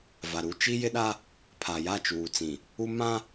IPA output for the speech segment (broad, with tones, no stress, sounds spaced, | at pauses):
v a˨ ɾ u˦ t͡ʃ i˦ j ɪ˦ ɗ a˦ | pʰ a˨ j a˦˨ t͡ʃ uː˨ t͡s ĩ˨ | u˦ m ã˦